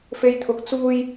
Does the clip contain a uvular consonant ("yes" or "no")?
no